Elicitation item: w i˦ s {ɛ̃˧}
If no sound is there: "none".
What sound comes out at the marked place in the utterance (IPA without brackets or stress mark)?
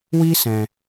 ɛ̃˧